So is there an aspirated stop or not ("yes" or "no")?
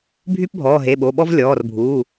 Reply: no